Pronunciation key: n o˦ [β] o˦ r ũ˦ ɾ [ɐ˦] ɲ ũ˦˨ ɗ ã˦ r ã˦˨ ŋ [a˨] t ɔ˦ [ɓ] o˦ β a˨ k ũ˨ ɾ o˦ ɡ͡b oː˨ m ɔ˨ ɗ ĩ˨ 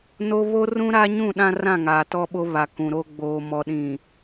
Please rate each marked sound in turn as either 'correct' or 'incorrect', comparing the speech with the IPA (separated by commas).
correct, incorrect, incorrect, correct